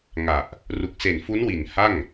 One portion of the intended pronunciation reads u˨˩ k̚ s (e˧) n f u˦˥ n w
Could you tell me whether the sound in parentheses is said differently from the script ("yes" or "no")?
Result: yes